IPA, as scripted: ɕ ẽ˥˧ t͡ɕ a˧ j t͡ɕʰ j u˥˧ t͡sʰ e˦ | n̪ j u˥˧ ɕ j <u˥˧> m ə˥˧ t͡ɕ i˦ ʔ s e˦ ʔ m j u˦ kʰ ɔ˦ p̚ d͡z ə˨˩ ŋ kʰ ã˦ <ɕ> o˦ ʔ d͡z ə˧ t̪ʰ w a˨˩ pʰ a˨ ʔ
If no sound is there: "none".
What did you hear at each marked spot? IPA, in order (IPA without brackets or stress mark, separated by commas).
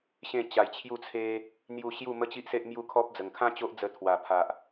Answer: u˥˧, t͡ɕ